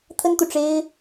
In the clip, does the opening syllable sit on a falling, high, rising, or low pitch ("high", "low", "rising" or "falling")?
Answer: high